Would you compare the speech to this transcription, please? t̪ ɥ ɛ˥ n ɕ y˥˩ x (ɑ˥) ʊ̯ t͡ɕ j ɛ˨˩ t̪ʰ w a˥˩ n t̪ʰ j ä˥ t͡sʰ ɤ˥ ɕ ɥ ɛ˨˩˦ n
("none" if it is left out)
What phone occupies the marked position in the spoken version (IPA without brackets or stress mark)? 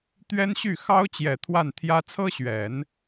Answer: ɑ˥